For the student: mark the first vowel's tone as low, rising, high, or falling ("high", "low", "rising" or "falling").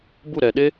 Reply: falling